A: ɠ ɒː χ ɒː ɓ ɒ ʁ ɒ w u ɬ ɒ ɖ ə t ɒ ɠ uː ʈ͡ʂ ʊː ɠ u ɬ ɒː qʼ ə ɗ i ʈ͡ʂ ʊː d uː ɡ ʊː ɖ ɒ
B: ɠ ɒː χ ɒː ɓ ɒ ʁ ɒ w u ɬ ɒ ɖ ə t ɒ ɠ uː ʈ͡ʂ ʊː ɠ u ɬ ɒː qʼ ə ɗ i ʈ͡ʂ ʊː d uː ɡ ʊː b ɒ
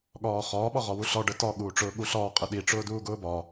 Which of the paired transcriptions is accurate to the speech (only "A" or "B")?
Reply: B